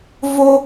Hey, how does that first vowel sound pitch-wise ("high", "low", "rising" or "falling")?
high